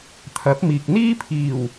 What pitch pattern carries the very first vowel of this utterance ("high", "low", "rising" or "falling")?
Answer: rising